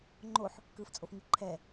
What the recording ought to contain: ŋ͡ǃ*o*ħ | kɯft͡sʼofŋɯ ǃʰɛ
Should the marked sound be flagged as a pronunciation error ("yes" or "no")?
no